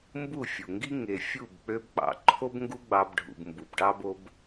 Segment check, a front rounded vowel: present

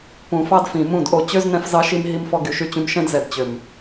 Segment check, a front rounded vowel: present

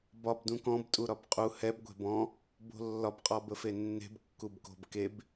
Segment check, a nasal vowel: present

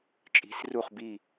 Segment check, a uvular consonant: present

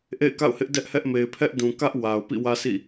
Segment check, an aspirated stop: present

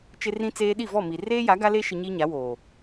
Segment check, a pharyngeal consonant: absent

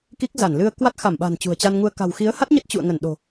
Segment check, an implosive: present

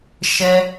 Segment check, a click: absent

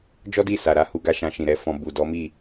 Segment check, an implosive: absent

